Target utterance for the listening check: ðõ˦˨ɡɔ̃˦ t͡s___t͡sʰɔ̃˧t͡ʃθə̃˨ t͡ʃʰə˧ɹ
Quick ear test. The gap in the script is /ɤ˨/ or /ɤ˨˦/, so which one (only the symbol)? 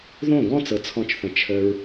ɤ˨